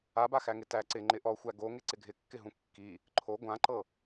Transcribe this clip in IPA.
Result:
a b a x æ ŋ ɪ t æ ǀ ɪ ŋ͡ǃ ɪ ʔ ɔ xʷ æ ɡ o ŋ ɪ ǀ ɪ ɡʱ ɪ kː ɪ ɦ ũ kː i | ǃʰ o ɡʷ ã ǃ ɤ

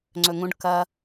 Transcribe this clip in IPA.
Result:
ŋ͡ǀ ɵ ŋ ũ ɖ k ɐ

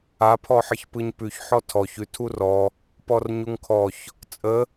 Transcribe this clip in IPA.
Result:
a pʰ ɔ ħ ə ç p ɯ ɲ p ʉ ç ħ ɔ tʰ ɔ ç ʉ tʰ u r ɔ | p ɔ r ɲ u ŋ kʰ ɔ ç | t͡sʼ ə

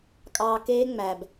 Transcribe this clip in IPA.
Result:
kʼ ɑː˧ k eː˦ ŋ͡m æ˧ b

